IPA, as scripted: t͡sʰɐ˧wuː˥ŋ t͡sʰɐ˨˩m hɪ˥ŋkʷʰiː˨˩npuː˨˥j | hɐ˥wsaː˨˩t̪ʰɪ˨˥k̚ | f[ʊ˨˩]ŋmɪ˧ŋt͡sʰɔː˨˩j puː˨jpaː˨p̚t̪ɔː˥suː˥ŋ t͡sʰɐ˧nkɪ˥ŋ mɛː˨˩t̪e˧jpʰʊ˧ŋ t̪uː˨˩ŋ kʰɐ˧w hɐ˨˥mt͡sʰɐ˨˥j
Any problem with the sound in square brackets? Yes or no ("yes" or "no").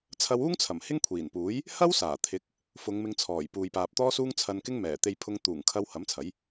yes